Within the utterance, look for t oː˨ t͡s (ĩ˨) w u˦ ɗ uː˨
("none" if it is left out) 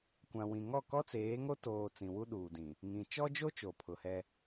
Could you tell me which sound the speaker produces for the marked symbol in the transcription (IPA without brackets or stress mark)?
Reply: ĩ˨